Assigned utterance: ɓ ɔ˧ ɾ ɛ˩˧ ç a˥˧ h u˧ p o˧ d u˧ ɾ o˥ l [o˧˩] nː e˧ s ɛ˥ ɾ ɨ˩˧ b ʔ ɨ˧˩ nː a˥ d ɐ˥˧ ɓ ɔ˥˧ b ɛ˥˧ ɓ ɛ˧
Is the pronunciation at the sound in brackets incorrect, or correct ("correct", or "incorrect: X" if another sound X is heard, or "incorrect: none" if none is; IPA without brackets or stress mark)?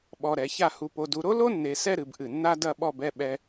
incorrect: o˥